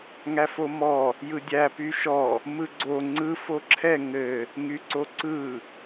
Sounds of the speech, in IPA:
ŋ æ f o m ɔ | j ɯ dʲ æ p y ʃ ɔ | m ɯ ɡ͡ǀ o ŋ͡ǀ ɯ f o ǁʰ ɛ ŋ ɘ | ŋ y ǀ o ǀ ɯ

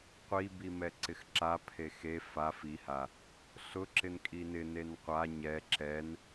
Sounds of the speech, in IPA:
qʷ i b i m ɛ ǀ ɪ x ǁ a pʰ e x e f a f i h a | ɬ ʊ ǁ ɪ n kʼ i n ɪ n e n qʷ a ɲ ɛ ǁ ɛ n

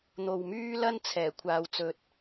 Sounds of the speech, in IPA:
n̪ o˨ w m yː˥ l ɐ˥ n t͡sʰ ɛː˨˩ kʷʰ aː˨ w t͡s ɵ˨ t̚

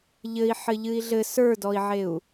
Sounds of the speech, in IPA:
ʎ ɘ i̯ ħ ɘ ʎ ɨ i̯ ɮ ɘ s ə˞ d ɔ i̯ ʕ e u̯

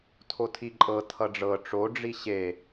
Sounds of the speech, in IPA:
tʰ o tʰ i ǃʼ ɤ tʰ ʌ ɖ͡ʐ ɤ ʈ͡ʂ o ɖ͡ʐ i ɕ e

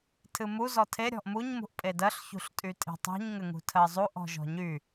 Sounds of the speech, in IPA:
tʰ ɨ m u z ɔ tʰ e ɾʲ ɔ̤ ʔ m u ɲ m ṳ ʔ pʼ e d ɜ ɬ ç ṳ ɬ tʼ y tʼ e̤ tˤ ṳ ɲ ŋ ɘ ŋ ṳ tʰ ɜ zˤ u ʔ ɔ̤ ʒ ɔ̤ ɲ y

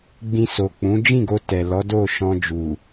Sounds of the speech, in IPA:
ɡ͡b ĩ˧ s o˨ k͡p ũ˨˦ d͡ʒ ĩ˦˨ ɡ o˧ t ɛ˨ l ɔ˨˦ d o˦˨ ʃ ɔ̃˧ d͡ʒ u˨

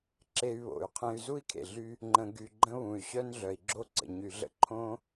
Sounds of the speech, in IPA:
ǁ e˧ y̯ β o̰˩ y̯ qʰ ẽ˧ y̯ z u˥ i̯ kʰ ḛ˩ ɮ y˧ | ŋ͡ǃ ə̃˧ ɡ y˧ ɡ͡ǃ ə̃˥ β ũ˩ y̯ ɕ œ˥ n ɮ œ˩ i̯ ɡ͡ǁ o˥ ǀ ə̰˩ ɲ y˩ ɮ ə̰˥ ǃʰ õ˥

